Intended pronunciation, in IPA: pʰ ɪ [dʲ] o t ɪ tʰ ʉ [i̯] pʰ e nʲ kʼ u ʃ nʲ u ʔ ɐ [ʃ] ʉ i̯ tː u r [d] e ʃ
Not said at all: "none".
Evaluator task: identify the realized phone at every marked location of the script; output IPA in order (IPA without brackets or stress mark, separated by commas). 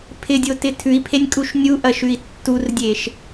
dʲ, i̯, ʃ, dʲ